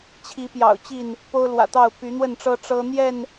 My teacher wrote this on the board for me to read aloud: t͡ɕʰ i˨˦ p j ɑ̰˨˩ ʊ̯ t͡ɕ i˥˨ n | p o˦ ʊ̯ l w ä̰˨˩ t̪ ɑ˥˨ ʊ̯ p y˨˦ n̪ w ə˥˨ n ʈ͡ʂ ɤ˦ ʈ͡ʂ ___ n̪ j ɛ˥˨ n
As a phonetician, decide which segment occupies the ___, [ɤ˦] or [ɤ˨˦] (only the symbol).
ɤ˦